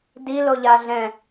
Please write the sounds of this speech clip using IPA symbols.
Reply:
d i l o ʎ a ɮ ɛ̃

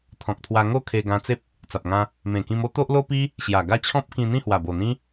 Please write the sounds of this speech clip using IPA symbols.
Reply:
t̪ʰ ɔ̃˨ k̚ t̪ʰ w a˧ ŋ o˥˧ kʰ e˧ ɡ ã˧ t͡s e˦ p̚ | t͡s a˨ p̚ ŋ ã˧ | m ẽ˨˩ k ĩ˧ m o˦ t̪ o˦ ʔ l o˦ p i˦ | ɕ j a˨˩ ɡ a˥˧ t͡ɕʰ ɔ̃˦ p̚ k ĩ˧ n̪ ĩ˥˧ h w a˨˩ b o˨˩ n̪ ĩ˦

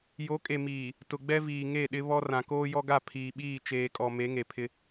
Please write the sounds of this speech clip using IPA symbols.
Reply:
j o˨˦ kʼ e˨ m iː˨ | t ʊ˨ ɡ͡b ɛ˦ v iː˨ ŋ e˦˨ ɗ ɪ˦ β ɔ˦ r ã˨ k oː˦ j ɔ˦ ɡ a˦˨ pʰ iː˨ ɓ iː˦˨ t͡ʃ eː˨ kʼ ɔ˨ m e˨˦ ŋ e˨ pʰ ɪ˦

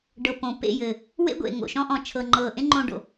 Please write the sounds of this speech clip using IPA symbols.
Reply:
ɖ ɤ˨ p õ˨ p ḛ˦˨ j ɘ˨ | w ḛ˦ ɡʷ ḛ˨ ŋ o̰˨ ʃ ɔ̃˦ ʔ ɔ̃˨ t͡ʃʰ ɤ˨ ŋ͡ǃ ɤː˨ ʔ ẽ˦ ŋ͡ǃ õ˦ ɖ o̰˨

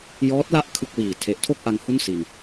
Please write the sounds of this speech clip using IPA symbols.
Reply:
j ɔː˦˥ t̚ l a˥˩ ʔ kʰ ɯ˥˩ k̚ w iː˨˩ tʰ e˨˩ ʔ tʰ o˥˩ k̚ ʔ a˧ ŋ h u˥˩ n s i˧ n

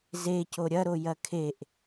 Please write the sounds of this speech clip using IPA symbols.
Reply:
z e c o ɾʲ ɐ ɾ o j ɐ kʰ e ʔ

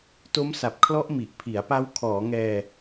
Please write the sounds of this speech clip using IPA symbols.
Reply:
t o˦˥ m s a˨˩ p̚ kʰ l ɔ˦˥ ʔ m i˨˩ ʔ pʰ i˩˦ a̯ p a˦˥ w kʰ ɔː˩˦ ŋ ɛː˧

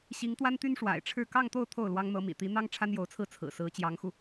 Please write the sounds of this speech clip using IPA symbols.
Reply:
ɕ i˧˥ ŋ t̪ w a˥ n t̪ y˥ n ʂ w a̰˨˩ ɪ̯ ʈ͡ʂʰ ɻ̩˥˧ k ɑ˥˧ ŋ t̪ o˥˧ ʊ̯ t̪ʰ o˥˩ ʊ̯ l w ɑ˥ ŋ n̪ ɤ˧˥ m ḭ˨˩ t̪ i˧˥ n̪ ɑ˥ ŋ ʈ͡ʂʰ a˥ n j o˧˥ ʊ̯ t͡sʰ ɹ̩˥˩ t͡sʰ ɹ̩˨˩ s ɹ̩˧˥ t͡ɕ j ɑ˧˥ ŋ x u˧

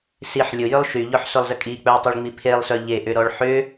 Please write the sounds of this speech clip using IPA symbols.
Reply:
s i ħ lʲ ʊ j ʏ lˠ ʃ y ʎ ɔ ħ s ʊ lˠ z ə kʼ i k͡p œ ə̯ tˤ i ɭ ŋ͡m i pʰ e lˠ s œ ʎ e ʔ ʏ ɾ ɔ ɭ ħ ʏ

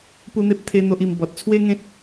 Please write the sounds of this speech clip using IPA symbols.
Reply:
p u˦ n̪ e˦ p̚ t̪ʰ e˦ n̪ o˦ ʔ i˧ m b ɔ˨ t̚ t͡sʰ w e˦ ŋ ẽ˦ t̚

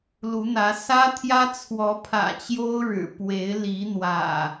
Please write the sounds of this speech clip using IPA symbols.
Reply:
l u˨˦ n̪ ä˨˦ s ä˦ t̪ʰ j ä˦ t͡sʰ w ɔ˨˦ pʰ ä̰˨˩ t͡ɕ j o˦ ʊ̯ ɻ ɻ̩˨˩ p w e˨˦ ɪ̯ l i˨˦ n̪ w ä̰˨˩

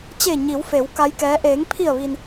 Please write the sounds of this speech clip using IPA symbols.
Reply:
t͡ɕ eː˧˩ ɲ i˩˧ w f e˩˧ w k a˧˥ j k ɛː˧˥ ʔ eː˩˧ ŋ pʰ i˧˩ ə̯ ʋ i˩ n

